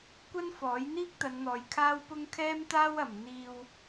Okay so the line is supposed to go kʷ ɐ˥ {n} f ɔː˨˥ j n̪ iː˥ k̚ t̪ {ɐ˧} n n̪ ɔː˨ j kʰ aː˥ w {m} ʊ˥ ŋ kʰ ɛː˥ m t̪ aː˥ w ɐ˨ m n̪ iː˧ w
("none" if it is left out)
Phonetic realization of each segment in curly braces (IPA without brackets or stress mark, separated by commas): n, ɐ˨˧, p